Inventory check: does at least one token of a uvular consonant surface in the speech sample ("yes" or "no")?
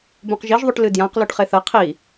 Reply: yes